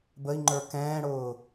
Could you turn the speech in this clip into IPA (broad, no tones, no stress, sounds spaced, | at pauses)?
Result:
b ə i̯ ŋ͡ǃ ə˞ k ɛ̃ː ɽ ʊː